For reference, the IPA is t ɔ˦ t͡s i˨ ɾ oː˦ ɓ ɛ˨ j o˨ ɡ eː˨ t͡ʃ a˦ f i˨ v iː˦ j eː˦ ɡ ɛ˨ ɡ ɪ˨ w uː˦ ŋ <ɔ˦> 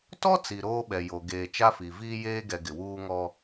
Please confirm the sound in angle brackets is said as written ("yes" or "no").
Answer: yes